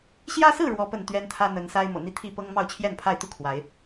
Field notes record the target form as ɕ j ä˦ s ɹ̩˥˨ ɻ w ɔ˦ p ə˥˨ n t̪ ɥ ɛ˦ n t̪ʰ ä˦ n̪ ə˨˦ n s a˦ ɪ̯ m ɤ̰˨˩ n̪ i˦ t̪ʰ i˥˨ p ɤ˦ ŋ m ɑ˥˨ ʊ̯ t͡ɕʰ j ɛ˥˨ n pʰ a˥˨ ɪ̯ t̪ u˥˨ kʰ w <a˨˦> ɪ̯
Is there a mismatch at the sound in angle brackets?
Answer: no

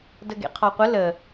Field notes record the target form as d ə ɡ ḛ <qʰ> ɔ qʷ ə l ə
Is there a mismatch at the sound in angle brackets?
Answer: no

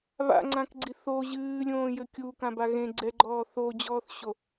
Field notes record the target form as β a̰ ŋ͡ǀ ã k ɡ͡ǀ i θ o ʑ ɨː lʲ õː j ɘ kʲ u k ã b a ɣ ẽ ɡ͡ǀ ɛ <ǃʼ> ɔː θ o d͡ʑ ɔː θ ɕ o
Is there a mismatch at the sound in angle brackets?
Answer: yes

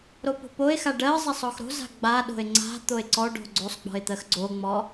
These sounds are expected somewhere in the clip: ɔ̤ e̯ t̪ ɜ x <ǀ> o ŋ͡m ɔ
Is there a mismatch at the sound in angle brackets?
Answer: yes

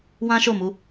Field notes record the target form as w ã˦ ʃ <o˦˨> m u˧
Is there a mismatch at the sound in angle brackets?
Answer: no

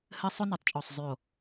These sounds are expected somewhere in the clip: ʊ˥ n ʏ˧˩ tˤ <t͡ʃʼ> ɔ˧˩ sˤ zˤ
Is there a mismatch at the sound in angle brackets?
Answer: no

